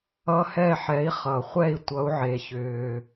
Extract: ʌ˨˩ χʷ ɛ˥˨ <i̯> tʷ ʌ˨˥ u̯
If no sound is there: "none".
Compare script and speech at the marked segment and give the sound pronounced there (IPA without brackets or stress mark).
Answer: i̯